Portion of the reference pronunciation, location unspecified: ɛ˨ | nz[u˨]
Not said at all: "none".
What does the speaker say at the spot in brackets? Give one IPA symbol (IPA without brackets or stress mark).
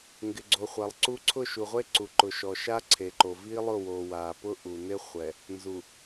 u˨